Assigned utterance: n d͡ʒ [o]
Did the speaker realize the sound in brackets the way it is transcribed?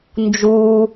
no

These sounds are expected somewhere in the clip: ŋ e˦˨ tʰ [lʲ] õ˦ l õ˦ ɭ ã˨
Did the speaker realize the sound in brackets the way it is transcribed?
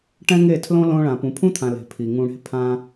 no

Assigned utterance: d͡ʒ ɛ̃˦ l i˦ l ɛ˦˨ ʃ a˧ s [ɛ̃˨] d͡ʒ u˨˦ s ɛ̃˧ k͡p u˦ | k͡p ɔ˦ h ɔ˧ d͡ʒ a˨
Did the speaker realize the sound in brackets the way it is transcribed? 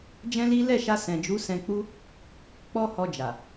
yes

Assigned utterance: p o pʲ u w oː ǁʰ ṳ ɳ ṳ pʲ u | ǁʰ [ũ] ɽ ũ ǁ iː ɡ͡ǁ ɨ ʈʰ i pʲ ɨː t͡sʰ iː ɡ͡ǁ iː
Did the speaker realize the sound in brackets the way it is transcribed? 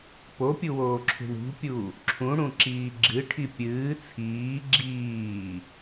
yes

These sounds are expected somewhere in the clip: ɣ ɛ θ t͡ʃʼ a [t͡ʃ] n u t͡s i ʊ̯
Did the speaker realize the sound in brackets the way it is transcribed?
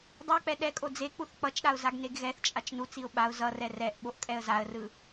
yes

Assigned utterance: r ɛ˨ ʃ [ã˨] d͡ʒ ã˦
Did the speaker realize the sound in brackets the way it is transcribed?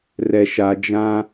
no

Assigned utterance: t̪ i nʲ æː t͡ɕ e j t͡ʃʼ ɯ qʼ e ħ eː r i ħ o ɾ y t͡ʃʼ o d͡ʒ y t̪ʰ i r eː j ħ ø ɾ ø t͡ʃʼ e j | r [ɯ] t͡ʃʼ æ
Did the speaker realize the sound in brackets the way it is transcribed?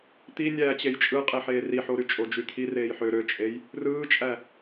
no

